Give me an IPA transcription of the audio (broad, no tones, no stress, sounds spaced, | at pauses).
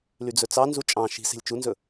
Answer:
l y d͡z ɵ t͡s ɑ n z u t͡ʃʼ ɑ̃ ʃ i̤ s e̤ lʲ t͡ʃ u n z ɵ